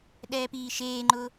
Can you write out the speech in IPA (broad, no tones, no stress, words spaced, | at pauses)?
ɗɛːpiːʃeːŋ͡ǃʊ